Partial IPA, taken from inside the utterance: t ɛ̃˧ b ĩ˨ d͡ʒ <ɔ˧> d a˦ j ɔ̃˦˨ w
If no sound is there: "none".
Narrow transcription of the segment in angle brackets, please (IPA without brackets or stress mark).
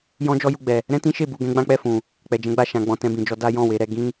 ɔ˧